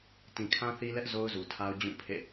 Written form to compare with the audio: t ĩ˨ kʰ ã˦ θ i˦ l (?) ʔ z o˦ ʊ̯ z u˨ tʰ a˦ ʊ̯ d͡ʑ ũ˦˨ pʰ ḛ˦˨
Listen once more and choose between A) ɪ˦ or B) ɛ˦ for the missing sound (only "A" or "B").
B